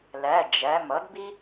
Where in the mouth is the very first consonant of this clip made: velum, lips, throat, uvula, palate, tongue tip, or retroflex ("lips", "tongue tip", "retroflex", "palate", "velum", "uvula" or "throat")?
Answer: tongue tip